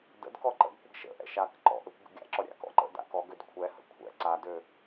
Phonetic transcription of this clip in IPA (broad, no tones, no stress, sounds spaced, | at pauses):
d ə̰ d k ɔ ǃ ə̰ ɡ kʷ ə ɡ ʃ ə̰ ʔ ɛ̰ ʃ a k ǃ ɔ̰ ʔ ø kʷ ɡ ə̰ ɡʲ a̰ ǁ ɔ ɾʲ a̰ k ɔ̰ ǃ ə̰ d a̰ k ɔ ɡ ø d kʷʰ ɛ h ə̰ kʷʰ ɛ̰ ǀ a d ø